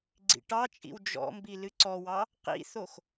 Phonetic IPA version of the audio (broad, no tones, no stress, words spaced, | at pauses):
ɡ͡ǀḭʈɑt͡ʃʼḭw d͡ʒɔ̰ mbilɨǀɔwɑ | qḭθox